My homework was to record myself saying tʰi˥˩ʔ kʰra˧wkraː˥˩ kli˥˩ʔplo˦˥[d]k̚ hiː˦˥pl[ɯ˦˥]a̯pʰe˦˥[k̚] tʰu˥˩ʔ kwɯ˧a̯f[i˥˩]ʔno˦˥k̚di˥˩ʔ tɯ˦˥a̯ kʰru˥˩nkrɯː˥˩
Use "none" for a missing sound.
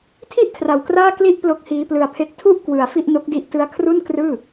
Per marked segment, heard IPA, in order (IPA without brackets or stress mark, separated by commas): none, ɯ˧, k̚, i˥˩